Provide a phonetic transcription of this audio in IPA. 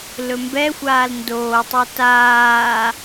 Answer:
l ɵ m b ɛ xʷ aː l n d oː tˤ u t aː

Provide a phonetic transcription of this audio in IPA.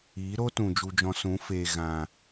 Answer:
iː˨˦ ɾ o˦ t ũ˨ d͡ʒ u˧ d͡ʒ ɔ̃˧ s ũ˨˦ f eː˨ ɣ ã˨

